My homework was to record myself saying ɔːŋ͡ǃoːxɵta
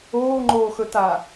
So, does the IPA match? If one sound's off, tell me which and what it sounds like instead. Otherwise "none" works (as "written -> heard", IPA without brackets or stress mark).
ɔː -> oː